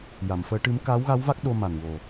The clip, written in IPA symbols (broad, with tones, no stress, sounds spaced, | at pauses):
j a˨˩˨ m f əː˧˥ ʈ ɨ˧˥ m k aː˧˥ w ɣ a˧˥ w v a˦˥ k̚ ɗ o˧ m a˨˩ n w o˨˩